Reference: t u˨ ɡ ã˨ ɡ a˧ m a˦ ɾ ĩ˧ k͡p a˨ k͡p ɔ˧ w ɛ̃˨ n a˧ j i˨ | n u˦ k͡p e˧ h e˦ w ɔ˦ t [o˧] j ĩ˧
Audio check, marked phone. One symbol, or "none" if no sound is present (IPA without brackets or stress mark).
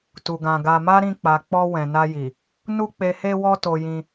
o˧